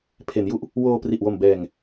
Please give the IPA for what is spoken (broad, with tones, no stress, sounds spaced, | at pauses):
pʰ e˩˦ n j u˥˩ ʔ | w oː˧ p r i˨˩ ʔ w o˨˩ m b ɛː˨˩ ŋ